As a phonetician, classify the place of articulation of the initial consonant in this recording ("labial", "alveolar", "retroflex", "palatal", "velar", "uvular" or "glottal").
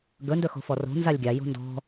velar